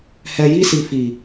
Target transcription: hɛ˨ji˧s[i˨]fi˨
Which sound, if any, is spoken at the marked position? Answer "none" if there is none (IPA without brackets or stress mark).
i˨